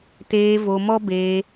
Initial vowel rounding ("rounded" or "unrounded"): unrounded